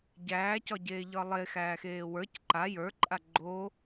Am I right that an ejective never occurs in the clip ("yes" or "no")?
no